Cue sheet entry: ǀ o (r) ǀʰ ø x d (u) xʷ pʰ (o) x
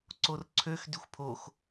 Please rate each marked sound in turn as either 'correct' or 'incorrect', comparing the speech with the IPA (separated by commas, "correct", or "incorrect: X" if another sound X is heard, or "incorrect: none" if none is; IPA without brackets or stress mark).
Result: correct, incorrect: y, correct